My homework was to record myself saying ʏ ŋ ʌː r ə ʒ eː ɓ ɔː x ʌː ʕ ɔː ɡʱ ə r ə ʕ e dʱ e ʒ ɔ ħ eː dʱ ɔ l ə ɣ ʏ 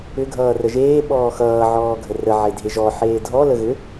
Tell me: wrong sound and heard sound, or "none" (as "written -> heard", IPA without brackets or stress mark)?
ŋ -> ɡʱ